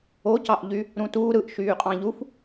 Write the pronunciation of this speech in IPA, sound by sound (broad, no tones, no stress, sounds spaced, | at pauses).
o c ɑ ʔ ʎ y | ɾ ũ t uː ɾ ɯ ʔ ʃ yː qʼ ɑ̃ ʎ u f